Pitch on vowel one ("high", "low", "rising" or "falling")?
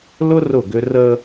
high